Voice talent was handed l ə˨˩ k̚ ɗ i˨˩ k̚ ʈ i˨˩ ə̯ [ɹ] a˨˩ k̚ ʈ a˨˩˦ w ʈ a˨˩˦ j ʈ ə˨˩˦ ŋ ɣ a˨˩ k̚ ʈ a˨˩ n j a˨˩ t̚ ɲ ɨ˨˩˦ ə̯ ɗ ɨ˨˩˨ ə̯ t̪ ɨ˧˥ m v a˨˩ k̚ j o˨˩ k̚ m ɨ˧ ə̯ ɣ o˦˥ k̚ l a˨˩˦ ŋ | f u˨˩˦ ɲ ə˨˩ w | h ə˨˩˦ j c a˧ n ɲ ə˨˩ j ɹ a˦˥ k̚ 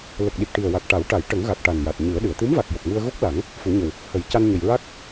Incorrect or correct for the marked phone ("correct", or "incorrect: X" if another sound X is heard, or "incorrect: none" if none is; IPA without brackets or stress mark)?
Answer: incorrect: w